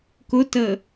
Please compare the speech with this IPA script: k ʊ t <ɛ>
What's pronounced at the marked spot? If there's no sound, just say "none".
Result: ə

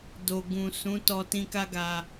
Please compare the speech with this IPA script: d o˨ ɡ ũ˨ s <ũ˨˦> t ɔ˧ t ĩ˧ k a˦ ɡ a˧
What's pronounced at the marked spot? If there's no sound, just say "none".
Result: ũ˨˦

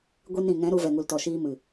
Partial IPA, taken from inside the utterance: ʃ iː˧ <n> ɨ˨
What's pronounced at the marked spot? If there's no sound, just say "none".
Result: m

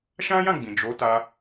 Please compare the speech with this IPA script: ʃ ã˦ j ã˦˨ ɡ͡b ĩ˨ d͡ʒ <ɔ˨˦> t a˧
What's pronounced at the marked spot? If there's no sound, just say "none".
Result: o˨˦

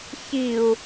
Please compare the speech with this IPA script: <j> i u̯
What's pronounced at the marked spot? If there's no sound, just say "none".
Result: ç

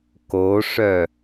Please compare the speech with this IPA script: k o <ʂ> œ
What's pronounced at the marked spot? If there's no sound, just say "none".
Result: ʂ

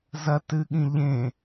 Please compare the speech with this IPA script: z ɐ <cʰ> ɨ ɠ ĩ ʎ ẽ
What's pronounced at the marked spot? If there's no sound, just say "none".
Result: t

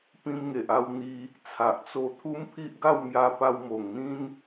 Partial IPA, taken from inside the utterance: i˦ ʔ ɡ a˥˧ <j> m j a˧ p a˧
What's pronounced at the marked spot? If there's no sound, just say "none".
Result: w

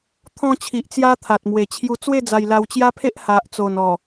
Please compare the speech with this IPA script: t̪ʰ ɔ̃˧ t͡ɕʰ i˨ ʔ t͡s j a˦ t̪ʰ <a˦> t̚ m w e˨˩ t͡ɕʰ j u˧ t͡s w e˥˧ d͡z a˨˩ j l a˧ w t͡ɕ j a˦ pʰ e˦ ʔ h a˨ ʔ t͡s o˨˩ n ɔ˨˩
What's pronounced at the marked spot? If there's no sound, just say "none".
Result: a˨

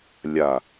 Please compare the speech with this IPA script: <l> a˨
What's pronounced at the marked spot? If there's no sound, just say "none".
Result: lʲ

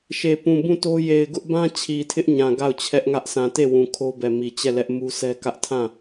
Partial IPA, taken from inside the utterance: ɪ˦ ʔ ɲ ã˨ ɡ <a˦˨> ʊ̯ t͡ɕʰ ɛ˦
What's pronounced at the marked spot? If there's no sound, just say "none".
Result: a˦˨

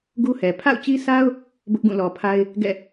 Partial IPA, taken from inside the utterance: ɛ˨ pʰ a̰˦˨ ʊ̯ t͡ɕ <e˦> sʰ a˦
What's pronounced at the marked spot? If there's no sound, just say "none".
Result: i˦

